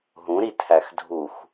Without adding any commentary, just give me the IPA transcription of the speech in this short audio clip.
ɦ ũ ɾ i tʰ æ x dʱ u x

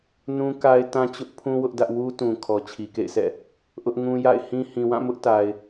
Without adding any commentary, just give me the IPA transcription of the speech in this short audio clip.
n ũ˦ k a˦ ɪ̯ t ã˦ t͡ɕ ʊ˦ ʔ pʰ ũ˦ w ʊ˦ ʔ d ä˦ ʔ w u˦ t ũ˨ kʰ ɔ˨ t͡ɕʰ i˨ k ḛ˦˨ ɪ̯ s ɛ̰˦˨ | ʔ ʊ˦ ʔ ŋ ũ˦ j a̰˦˨ ɪ̯ h ĩ˦ h ĩ˨ w ã˦˨ m ʊ˦ ʔ t a˨ ɪ̯

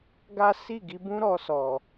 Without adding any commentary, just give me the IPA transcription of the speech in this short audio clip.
ɡ a˦ s i˦˨ ɡ i˧ b ũ˦ ɾ ɔ˧ s ɔ˨

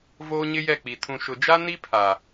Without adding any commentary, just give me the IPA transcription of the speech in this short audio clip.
v oː˦ ɲ ɪ˦ j ɛ˦˨ k͡p i˨ tʰ ũ˨ ʃ ʊ˨ d͡ʒ a˦ n i˦ pʰ a˨

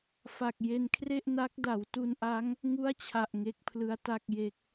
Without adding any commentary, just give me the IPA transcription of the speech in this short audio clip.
f a˨˩ k̚ j e˧ n kʰ r e˥˩ ʔ n a˦˥ k̚ d a˩˦ w t u˧ n ʔ a˦˥ ŋ | ŋ u˥˩ a̯ t͡ɕʰ a˨˩ ʔ ŋ e˦˥ k̚ pʰ l ɯ˦˥ a̯ t a˥˩ k̚ j e˦˥ k̚

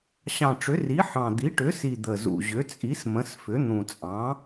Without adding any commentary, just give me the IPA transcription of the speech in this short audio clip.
ɕ ɑ̃˨˩ ʈ͡ʂ ʏ˩˥ r i˩˥ ħ ɑ̃˨˩ d̪ i˩˥ ʈ ʏ˩˥ s i˨˩ d̪ ə˨˩ z ṵ˨˩ ʑ ʏ˩˥ t͡sʼ i˩˥ s m ə̃˩˥ s f ʏ˩˥ n̪ ũ˨˩ t͡sʼ ɑ̃˩˥

